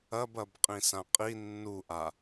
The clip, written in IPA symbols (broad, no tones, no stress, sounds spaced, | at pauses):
ɐ b ɐ b qʼ ĩ s ã qʼ i nː u ʔ a